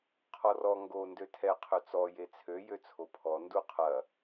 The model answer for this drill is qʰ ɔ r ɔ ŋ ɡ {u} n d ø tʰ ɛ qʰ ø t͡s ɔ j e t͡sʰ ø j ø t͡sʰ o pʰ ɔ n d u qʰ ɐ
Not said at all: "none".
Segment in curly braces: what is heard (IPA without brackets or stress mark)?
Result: o